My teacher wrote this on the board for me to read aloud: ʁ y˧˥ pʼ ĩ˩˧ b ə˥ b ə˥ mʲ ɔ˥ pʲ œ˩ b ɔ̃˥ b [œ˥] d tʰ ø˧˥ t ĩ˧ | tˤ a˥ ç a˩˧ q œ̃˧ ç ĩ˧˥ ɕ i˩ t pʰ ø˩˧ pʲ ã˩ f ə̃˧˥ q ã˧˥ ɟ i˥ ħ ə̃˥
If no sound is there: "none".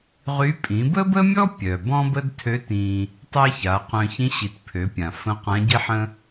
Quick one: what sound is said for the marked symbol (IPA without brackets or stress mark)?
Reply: ə˥